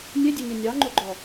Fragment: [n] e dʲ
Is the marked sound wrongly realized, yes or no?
yes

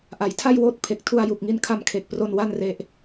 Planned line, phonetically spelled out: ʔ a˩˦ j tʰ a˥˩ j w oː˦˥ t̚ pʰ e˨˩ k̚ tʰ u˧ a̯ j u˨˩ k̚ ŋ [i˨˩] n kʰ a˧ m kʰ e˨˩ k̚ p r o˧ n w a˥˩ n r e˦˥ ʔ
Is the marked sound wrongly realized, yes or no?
yes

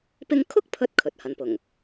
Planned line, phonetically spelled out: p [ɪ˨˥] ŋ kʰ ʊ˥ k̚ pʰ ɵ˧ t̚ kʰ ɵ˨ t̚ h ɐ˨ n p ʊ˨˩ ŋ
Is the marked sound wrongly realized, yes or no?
yes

